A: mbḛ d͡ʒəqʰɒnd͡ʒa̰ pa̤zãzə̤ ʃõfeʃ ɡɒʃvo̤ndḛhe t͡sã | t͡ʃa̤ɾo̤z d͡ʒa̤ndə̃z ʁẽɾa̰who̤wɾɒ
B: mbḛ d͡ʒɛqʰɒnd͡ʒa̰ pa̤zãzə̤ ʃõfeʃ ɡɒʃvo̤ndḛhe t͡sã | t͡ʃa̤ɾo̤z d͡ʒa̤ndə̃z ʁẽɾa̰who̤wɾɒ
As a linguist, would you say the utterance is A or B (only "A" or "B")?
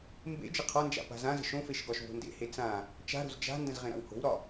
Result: A